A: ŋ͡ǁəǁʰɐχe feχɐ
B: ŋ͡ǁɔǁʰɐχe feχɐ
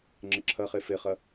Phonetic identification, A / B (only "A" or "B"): A